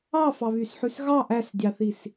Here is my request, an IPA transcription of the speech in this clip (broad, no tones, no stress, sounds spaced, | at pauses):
ɑ f ɑ β y s ħ ʉ s ɣ ɑ ʔ æ s dʲ ɑ θ i s